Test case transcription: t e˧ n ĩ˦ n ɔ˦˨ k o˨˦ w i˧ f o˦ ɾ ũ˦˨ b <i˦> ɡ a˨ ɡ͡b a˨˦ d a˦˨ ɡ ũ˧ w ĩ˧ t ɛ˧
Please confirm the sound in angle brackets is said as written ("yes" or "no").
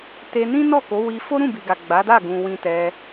no